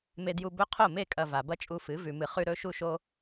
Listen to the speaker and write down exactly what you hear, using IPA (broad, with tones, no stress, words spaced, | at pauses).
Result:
me˧dju˧ bɵ˦ qʰo˦˨me˦˨kʼɐ˨ va˨bɐ˦t͡ʃʼu˧fɨ˨˦ vʉ˨mɨ˨ χʉ˧ ɾɵ˦ʃu˦ʃo˦